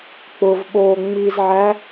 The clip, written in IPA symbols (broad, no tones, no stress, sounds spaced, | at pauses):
k͡p ʊ v ɓ oː ŋ͡m i z ʕ æ